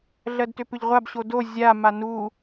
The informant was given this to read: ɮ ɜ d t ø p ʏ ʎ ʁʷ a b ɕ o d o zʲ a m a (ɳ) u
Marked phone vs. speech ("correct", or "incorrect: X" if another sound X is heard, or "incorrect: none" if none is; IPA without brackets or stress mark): incorrect: n